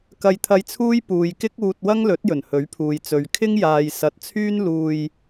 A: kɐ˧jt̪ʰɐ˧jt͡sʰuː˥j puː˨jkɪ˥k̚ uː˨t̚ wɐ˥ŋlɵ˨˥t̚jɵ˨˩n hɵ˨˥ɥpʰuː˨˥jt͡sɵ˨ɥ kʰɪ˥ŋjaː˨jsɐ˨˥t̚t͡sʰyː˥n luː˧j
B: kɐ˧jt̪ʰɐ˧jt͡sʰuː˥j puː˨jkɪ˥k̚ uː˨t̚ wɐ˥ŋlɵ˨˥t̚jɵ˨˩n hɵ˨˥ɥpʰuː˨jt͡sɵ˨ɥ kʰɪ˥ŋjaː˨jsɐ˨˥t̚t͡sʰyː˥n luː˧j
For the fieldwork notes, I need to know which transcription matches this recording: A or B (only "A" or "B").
B